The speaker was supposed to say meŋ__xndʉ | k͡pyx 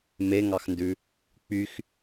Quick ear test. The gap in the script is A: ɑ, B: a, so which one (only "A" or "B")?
A